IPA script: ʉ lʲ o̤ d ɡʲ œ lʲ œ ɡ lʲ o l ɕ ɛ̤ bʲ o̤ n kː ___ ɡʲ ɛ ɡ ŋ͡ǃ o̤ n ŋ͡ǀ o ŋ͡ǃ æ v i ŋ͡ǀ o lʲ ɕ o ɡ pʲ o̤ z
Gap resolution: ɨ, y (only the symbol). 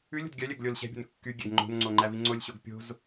y